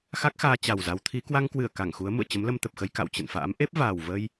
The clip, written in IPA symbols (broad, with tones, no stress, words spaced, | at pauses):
xa˦˥k̚xaː˧ t͡ɕa˨˩wza˨˦wt̪ʰi˨˦ kwa˧ŋkwɨ˧˩ə̯ ka˧˩ŋxu˨˦ə̯ mṵ˧˨ə̯ t͡ɕə˨˦mlə˧mt̪ə˨˩p̚xə˧j ka̰˧˨wt͡ɕə̰˧˨nfa̰ː˧˥m ʔe˦˥p̚vaː˨˩wvə˧j